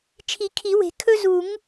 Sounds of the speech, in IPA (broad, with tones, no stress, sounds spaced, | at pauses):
t͡ʃʰ i˨˩˦ kʰ i˨˩˦ w e̤˨˩˦ kʰ ɵ˦ z u˨˩˦ ŋ